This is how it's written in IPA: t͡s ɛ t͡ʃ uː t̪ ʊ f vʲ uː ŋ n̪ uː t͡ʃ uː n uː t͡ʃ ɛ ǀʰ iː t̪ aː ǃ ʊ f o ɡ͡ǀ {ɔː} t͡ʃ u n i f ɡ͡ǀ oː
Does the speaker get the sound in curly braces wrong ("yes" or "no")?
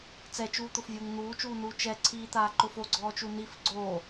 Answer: no